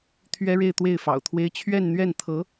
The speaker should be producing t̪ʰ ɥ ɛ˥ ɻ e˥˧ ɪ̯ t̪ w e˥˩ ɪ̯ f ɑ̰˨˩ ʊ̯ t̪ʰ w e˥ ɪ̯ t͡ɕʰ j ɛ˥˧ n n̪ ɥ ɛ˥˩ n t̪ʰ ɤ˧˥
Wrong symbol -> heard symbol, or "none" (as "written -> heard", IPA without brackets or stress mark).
j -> ɥ